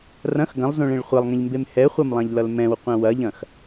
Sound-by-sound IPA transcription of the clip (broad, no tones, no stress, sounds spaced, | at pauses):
r ɐ̃ x ɡ ɐ̃ lˠ z õ ɭ ẽ ɭ χʷ ɐ lˠ ŋ ẽ ʎ m b e m h ɛ χʷ ɐ m lˠ ã ʎ l ʌ l m ɛ̃ w qʷ ɐ̃ w ɐ ʎ ɐ̃ x